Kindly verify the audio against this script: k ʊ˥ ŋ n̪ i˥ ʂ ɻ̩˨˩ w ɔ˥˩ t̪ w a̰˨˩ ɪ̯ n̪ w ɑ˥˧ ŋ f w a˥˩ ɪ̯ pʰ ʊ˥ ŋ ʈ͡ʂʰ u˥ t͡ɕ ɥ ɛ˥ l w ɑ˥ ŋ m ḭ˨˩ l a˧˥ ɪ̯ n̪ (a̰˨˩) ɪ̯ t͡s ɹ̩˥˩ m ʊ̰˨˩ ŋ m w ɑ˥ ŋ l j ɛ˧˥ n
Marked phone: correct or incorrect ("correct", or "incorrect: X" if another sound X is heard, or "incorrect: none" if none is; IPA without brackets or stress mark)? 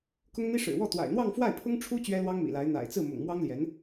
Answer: correct